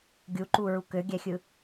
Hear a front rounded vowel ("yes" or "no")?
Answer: yes